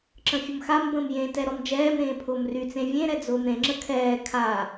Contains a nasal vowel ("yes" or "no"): yes